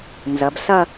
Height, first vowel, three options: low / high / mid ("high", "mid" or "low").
low